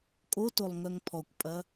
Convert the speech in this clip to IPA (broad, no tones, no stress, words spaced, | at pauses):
kʼotolˠ ŋœŋpʰɔkʷpʼɐ